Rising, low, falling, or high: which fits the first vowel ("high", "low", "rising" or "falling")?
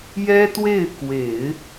high